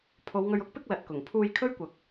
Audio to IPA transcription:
pʰo˨˧wŋɵ˧ɥʊ˥k̚ pɪ˥k̚ lɐ˨t̚kʊ˨˩ŋ pʰuː˧jkʰɵ˥ɥkʷɐ˨k̚

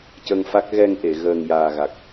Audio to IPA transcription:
cə˧ŋfa˦˥k̚ ɣɛ˧ŋʔe˨˩˨ ɣəː˨˩ŋjaː˨˩ɣa˨˩k̚

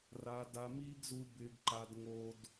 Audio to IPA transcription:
ra˧ da˧miː˦ɡzu˧ bɪː˧ɡǃa˧d ŋo˧d

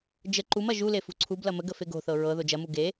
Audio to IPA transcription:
d͡ʒə ǃumɐ ʒule fṳǀʰublɐ məɡ əfeɡo̤θɤ ɹɤ ðod͡ʒɐmu ɡe

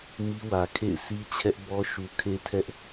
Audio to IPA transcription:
mi˦wä˨ kʰḛ˦˨ɪ̯si˦ t͡ɕʰɛ˦ʔ bɔ˦ ʃu˨kʰe˦tʰɛ˦ʔ

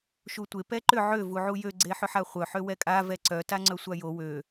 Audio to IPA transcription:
ʃutʷe pɛǃʏ ʕø vuʕujø ɡ͡ǀeħʏħaχʷœ ħøwɛkʼa vɛǀœ taŋ͡ǀœsʷajo wø

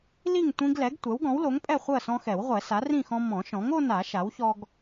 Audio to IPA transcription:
li˥˨ŋtʷĩ˦ɡlɛ˩˥ɡ tʷɛ˩˥wɡɔ̃˩˥wlo˩˥ŋpʼɛ˥˨ χʷɜ˥˨sɔ̃˦xɛ˨˩˦wʁʷɛ˨˩˦ sa˩˥rĩ˥˨xɔ̃˦ mɔ̃˨˩˦ʃɔ̃˩˥ŋo˦na˨˩˦ ʃa˩˥wçɔ˦ɡ

